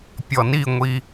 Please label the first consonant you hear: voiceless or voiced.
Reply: voiceless